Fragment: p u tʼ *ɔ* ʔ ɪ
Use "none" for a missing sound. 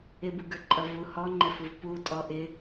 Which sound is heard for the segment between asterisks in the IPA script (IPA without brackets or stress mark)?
ɔ